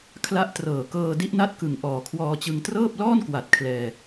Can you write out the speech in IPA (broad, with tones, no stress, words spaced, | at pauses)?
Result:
kʰla˦˥ʔtrɤː˨˩kɤː˧ di˦˥ʔna˦˥t̚kɯ˨˩ŋ ʔɔː˨˩kʰwɔː˧t͡ɕɯ˧ŋ trɤː˥˩p̚lɔː˥˩nkwa˨˩t̚ kʰlɛː˧